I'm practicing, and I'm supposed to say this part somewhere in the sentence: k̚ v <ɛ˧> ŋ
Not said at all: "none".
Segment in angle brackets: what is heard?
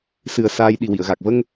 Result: ə˧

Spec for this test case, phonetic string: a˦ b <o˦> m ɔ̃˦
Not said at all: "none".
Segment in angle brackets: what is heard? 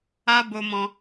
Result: o˦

